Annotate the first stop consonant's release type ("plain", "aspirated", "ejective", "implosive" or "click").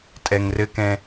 ejective